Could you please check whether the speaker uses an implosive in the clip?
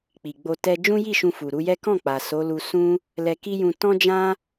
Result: no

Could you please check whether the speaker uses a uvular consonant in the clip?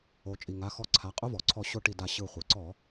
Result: yes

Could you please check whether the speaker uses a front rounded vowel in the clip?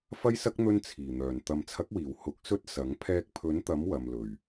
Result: yes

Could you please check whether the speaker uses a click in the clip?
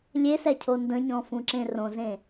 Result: yes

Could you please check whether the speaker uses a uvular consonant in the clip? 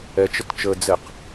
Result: yes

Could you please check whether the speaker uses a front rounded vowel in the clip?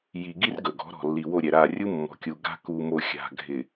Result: no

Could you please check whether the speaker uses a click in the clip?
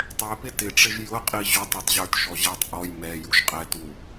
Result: no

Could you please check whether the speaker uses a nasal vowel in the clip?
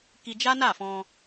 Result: yes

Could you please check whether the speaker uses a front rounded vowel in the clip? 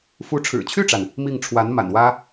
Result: yes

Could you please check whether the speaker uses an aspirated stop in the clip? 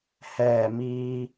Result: no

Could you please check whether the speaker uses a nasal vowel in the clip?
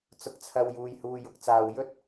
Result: no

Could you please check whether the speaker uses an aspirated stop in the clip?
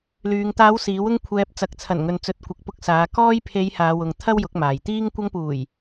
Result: yes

